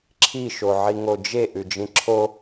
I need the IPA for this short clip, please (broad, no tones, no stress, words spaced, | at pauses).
ǁʰi ʃoʕiŋod͡ʒe ʔʉd͡ʒĩǁʰo